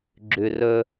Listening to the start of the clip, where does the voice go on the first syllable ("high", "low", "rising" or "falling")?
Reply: low